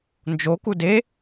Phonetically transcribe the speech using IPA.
n d͡ʒ o k u d e

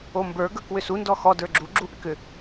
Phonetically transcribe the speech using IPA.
o m b ə˞ ɡ ə˞ k w ʏ s u n d ɔ x ɔ d ə˞ ɡ͡ǁ u ɡ͡ǁ u ʔ ʏ k ʏ

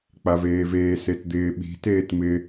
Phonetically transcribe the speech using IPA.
k͡p a v eː v eː s e t d̪ ɪː ɓ i̤ t eː t m ɪ

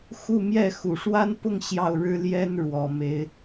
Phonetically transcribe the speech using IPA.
x u˥˧ m j ɛ˥˩ x u˨˩ ʂ w a˥ n p ʊ˥˧ ŋ ɕ j ɑ˥˩ ʊ̯ ɻ ɻ̩˥ l j ɛ˥ n ɻ w ɔ˨˩ m e˧˥ ɪ̯

